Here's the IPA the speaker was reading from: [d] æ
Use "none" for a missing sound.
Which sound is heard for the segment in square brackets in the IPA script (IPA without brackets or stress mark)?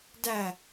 d